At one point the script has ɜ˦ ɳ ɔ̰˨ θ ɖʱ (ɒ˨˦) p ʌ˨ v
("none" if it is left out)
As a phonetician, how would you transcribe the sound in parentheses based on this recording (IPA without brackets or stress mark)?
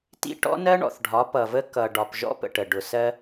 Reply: ɒ˨˦